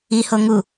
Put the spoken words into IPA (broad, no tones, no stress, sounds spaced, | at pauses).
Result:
i h o ŋ u